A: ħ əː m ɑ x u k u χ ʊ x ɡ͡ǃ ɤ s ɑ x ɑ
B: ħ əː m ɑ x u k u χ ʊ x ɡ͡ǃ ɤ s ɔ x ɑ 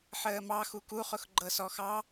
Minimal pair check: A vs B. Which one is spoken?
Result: B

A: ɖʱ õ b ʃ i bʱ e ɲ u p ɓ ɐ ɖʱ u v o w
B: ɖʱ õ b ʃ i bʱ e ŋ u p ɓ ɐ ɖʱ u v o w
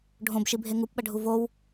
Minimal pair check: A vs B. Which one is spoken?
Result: B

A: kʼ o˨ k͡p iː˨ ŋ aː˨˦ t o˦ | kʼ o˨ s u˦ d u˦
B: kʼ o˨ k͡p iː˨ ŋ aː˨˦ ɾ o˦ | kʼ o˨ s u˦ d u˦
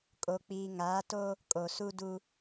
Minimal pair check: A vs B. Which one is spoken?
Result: A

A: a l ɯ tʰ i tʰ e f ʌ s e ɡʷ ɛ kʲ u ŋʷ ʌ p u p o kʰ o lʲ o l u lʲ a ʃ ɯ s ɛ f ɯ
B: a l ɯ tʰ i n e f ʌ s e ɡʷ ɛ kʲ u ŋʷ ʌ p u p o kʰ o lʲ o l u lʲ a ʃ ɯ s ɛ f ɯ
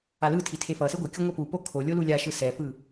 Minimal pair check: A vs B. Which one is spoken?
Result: A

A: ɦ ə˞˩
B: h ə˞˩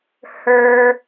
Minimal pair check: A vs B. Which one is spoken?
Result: B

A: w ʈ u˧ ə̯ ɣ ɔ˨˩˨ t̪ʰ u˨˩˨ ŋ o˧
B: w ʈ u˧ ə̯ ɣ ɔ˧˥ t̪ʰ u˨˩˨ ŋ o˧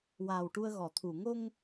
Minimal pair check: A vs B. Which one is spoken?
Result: A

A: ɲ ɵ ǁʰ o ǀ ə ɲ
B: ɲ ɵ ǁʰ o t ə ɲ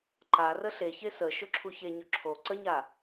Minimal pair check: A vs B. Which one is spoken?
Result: A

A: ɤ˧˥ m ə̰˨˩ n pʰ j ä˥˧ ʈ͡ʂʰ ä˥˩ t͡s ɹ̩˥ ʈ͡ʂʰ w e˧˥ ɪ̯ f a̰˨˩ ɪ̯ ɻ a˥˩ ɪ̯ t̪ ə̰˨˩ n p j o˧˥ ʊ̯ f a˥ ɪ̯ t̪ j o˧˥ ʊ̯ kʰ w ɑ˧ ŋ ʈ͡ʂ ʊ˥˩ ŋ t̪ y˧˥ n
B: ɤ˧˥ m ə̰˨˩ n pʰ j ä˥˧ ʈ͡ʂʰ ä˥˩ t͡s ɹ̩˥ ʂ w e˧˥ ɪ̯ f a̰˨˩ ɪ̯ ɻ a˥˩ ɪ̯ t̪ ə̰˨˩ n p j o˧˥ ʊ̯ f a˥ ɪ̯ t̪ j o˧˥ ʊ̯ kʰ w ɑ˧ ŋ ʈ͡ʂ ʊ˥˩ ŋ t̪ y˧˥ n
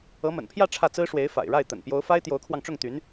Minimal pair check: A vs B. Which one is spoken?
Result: B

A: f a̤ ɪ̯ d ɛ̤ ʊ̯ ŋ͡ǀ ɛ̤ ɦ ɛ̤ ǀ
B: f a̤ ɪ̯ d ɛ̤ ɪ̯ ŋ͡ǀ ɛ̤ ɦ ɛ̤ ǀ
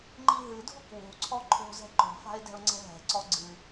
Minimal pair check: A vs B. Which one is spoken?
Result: A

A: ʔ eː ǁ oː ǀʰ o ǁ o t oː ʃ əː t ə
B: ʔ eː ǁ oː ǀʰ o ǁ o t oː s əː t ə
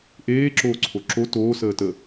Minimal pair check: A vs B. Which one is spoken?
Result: B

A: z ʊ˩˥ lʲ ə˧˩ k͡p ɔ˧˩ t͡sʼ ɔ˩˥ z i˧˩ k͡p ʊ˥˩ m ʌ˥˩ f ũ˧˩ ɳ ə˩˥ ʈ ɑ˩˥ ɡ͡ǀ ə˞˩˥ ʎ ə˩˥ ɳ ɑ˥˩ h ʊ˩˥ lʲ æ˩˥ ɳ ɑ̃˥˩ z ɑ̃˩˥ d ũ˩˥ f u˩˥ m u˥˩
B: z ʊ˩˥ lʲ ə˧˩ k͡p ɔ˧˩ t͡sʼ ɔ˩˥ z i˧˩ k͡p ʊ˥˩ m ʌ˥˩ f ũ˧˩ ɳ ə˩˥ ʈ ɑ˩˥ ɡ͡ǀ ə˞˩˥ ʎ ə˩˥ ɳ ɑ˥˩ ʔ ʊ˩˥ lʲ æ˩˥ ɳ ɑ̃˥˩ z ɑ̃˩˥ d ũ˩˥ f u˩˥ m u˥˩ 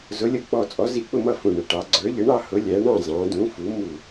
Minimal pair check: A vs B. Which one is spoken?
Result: A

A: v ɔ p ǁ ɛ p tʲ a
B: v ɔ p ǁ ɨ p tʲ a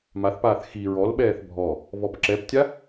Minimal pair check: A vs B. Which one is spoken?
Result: A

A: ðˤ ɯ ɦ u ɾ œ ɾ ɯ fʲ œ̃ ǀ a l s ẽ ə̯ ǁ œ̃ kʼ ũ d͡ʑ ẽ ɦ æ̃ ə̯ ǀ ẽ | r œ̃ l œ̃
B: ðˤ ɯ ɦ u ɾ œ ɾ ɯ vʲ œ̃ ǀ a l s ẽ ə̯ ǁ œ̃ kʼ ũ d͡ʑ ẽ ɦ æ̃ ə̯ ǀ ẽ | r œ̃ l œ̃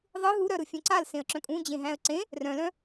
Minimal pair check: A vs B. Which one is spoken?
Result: A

